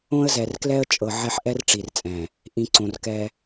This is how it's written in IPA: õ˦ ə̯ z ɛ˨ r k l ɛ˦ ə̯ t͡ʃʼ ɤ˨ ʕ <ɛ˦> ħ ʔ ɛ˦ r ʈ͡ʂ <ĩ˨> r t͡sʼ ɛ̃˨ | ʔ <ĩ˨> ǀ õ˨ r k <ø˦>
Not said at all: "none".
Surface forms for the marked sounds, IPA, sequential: ɛ˦, i˨, ĩ˨, ɛ˦

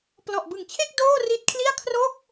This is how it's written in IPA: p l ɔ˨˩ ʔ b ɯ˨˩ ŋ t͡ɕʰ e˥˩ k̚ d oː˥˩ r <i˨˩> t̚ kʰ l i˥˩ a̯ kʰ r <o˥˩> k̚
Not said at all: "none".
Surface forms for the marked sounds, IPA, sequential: i˦˥, o˥˩

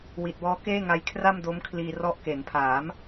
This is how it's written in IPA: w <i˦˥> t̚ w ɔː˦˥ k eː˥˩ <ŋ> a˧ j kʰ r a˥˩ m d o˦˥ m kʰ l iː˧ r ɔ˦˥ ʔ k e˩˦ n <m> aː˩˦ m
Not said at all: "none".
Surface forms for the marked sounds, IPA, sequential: i˨˩, ŋ, pʰ

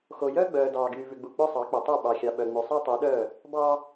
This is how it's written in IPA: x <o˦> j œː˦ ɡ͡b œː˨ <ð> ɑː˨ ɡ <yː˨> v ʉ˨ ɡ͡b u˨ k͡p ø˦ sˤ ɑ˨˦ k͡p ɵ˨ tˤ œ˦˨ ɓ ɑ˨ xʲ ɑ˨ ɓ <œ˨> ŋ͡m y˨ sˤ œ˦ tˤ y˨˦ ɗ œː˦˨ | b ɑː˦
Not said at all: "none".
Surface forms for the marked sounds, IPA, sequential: o˨, d, yː˨, œ˨

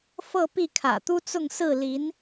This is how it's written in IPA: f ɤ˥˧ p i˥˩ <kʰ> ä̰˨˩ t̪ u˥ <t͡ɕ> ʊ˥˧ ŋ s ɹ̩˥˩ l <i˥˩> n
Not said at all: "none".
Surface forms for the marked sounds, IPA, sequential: kʰ, t͡s, i˧˥

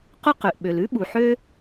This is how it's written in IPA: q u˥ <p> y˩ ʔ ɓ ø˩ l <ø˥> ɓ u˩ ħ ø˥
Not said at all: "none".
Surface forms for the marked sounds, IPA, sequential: q, ʉ˥

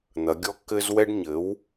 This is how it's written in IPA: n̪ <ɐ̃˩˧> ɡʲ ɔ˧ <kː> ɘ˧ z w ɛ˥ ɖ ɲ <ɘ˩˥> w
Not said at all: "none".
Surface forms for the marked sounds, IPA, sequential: ɐ˩˧, kː, ɘ˩˥

